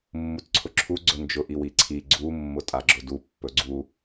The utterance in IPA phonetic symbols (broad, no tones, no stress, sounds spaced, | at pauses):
mː u t ǀʰ ʊ ǁʰ u ɡ͡ǀ ɵ n d͡ʒ ʊ ʔ i w i ǀʰ i ɡ͡ǀ u mː ʊ tʼ a ɡ͡ǁ ʊ d u pː ɵ ɡ͡ǀ u